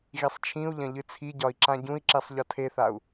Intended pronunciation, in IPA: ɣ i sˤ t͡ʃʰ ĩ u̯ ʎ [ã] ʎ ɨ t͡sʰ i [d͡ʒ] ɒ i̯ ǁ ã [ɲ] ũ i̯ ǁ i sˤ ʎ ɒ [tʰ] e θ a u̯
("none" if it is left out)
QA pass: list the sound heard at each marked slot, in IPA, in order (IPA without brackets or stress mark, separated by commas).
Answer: ɐ̃, ɟ, ɟ, tʰ